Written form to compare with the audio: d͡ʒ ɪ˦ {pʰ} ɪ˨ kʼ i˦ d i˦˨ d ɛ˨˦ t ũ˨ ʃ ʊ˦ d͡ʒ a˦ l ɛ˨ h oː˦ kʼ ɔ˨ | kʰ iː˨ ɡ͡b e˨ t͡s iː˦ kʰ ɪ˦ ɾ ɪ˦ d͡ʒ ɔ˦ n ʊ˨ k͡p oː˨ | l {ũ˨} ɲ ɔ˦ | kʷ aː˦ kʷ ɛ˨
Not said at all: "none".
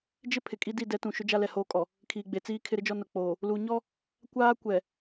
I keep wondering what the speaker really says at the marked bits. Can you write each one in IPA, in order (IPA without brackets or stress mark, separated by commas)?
pʰ, u˨